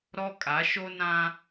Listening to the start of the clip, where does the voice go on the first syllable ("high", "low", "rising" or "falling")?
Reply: high